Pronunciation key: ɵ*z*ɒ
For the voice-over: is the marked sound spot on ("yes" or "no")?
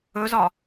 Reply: yes